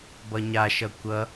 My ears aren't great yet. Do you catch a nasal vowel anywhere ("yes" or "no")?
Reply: no